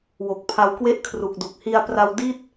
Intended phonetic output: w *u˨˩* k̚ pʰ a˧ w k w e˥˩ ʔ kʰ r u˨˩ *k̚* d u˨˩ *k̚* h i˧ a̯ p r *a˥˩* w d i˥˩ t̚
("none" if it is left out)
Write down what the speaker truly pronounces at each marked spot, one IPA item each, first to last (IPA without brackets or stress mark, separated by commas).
o˨˩, k̚, k̚, a˧